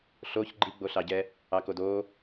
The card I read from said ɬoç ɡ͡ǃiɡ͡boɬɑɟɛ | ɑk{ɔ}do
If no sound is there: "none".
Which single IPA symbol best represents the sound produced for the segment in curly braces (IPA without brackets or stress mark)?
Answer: o